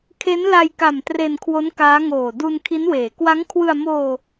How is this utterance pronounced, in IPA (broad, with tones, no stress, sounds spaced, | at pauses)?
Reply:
kʰ e˦˥ n l a˧ j k a˨˩ m t r e˧ n kʰ w o˦˥ n k aː˦˥ ŋ oː˨˩ d u˧ n kʰ i˦˥ n w eː˩˦ k w a˦˥ ŋ kʰ w ɯ˧ a̯ m oː˧